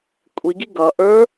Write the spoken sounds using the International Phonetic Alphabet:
kʷʼ i ɡ i ɡ ʌ ʔ ə˞

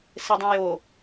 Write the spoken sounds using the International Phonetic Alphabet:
s e dˤ ẽ j o

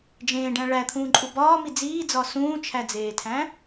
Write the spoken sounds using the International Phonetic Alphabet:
d͡ʒ ẽː ɖ æ̃ ɭ æ t̪ʰ ũː ǃʼ u b ɒː m i d͡z iː d͡z ɒ s ũː t͡ʃʰ æ d͡z eː tʰ æ̃

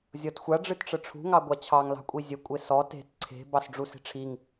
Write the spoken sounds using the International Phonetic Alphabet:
zʲ ɔ t xʷ a ɖ͡ʐ ɨ t ʈ͡ʂ ə ʈ͡ʂʰ ṳ ŋ ɑ ɡʷ a t͡ɕʰ ɑ ŋ l ɑ̤ kʷʼ i zʲ ə kʷʼ e s ɔ t e̤ t ǀʰ e̤ b ɑ s ɖ͡ʐ u s e̤ ʈ͡ʂʰ i ŋ

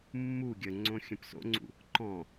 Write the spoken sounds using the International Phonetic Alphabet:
mː u ɡʲ ə ŋ͡ǀ õ xʲ ə̃ p s o̰ ŋ͡ǀ ṵ | ǃ ɔ̃

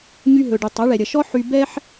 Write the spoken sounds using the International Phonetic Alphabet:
ɲ y˧ ɦ ɵ˩ ɖ y˩ tˤ ɐ˩˥ ɭ ɛ˩ ɾʲ ɐ˩ ʃ ɔ˥ ħ y˧ b ɛ˥ ħ

